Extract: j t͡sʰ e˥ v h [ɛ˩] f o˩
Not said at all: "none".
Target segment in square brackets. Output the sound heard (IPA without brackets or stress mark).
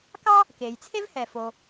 ɛ˩